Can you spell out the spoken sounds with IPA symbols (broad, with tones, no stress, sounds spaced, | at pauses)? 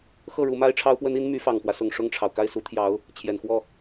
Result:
x ɤ˥˩ ɻ u˧˥ m a˥ ɪ̯ ʈ͡ʂʰ ɑ˥ ʊ̯ p w ə˥ n i˥ n m y˧˥ f ɑ˨˩ ŋ k w ä˦ s ʊ˨˩ ŋ ʂ ʊ˥˩ ŋ ʈ͡ʂʰ ɑ˩ ʊ̯ k a˥˩ ɪ̯ s u˧˥ t̪ʰ j ɑ˧˥ ʊ̯ | t͡ɕʰ j ɛ˨˩ n x w ɔ˥˩